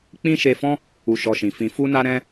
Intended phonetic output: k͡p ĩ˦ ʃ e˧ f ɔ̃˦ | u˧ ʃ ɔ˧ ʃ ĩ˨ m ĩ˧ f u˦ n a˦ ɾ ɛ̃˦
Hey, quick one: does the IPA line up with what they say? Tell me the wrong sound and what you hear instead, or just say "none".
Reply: m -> f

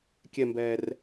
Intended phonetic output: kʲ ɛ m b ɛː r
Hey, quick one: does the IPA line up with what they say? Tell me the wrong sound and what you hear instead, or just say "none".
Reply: none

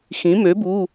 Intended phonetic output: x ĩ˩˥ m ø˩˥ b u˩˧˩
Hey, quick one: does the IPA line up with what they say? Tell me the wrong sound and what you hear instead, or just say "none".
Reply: none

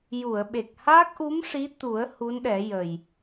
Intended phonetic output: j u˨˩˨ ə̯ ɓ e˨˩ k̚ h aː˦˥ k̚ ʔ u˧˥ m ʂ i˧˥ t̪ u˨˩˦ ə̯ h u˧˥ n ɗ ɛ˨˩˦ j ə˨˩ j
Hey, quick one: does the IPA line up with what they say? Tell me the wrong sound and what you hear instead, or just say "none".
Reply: none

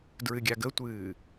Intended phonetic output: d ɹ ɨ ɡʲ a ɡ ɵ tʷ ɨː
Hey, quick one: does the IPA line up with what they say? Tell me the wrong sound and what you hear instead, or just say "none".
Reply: ɵ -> ə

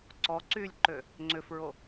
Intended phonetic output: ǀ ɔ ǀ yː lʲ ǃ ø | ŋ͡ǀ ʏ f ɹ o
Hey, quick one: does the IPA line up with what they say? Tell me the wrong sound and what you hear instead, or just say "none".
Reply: none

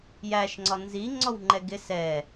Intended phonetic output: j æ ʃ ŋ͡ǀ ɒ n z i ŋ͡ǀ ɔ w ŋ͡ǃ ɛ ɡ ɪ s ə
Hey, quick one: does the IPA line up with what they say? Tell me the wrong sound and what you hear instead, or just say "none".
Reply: ə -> ɛ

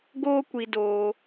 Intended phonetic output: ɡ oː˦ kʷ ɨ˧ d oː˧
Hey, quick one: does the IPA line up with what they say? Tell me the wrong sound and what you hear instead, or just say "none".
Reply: ɨ˧ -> i˧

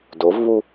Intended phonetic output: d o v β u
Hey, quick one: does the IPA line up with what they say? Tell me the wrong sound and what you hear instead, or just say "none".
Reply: none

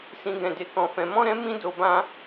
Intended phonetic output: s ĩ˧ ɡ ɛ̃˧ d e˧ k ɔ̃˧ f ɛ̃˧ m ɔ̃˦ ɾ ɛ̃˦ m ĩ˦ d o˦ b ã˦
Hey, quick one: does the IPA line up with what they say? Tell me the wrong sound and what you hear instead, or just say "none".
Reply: none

